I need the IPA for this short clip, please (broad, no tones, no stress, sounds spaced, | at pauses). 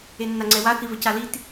e nː a ŋ͡ǀ ɛ w a θ i v ɘ c a l i t